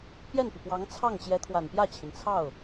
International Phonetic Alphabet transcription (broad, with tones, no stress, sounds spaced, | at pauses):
p j ɛ˥˩ n p i˩ p w ɑ˧˥ ŋ t͡sʰ ɑ˥˩ ŋ t͡ɕ j ɛ˧˥ t̪ʰ w a˨˩ n p j ä˥˩ t͡ɕʰ i˩ n t͡sʰ ɑ˥˩ ʊ̯